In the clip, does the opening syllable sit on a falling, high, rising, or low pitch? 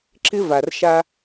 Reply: high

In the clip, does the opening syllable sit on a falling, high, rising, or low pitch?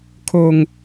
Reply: low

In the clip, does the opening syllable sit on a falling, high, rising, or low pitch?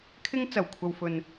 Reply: high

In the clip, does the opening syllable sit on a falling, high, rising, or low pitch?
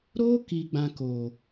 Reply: high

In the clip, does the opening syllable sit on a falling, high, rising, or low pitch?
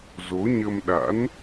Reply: rising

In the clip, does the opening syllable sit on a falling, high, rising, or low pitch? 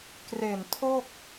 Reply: low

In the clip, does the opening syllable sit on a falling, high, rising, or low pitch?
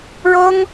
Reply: high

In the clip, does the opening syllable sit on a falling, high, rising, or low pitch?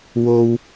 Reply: high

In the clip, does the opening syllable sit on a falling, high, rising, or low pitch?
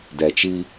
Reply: low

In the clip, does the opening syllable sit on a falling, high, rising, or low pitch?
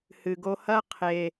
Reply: low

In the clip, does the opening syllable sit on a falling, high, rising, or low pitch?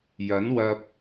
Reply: rising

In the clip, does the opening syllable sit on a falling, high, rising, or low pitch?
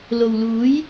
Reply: low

